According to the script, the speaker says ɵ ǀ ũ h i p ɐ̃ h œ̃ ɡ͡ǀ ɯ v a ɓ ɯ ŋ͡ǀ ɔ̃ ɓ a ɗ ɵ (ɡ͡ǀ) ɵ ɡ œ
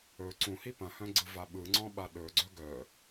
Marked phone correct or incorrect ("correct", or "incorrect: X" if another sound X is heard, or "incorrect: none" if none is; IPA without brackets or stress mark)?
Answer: correct